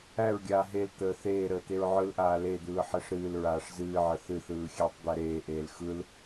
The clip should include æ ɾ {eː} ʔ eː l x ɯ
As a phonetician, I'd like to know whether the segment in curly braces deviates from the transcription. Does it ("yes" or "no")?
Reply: no